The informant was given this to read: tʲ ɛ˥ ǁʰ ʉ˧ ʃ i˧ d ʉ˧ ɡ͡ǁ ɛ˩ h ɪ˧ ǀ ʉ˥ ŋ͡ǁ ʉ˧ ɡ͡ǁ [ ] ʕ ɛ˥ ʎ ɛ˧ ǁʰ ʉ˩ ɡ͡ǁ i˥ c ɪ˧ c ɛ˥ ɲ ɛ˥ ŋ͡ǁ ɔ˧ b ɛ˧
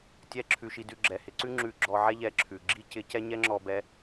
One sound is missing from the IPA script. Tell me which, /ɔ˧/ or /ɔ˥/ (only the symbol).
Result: ɔ˧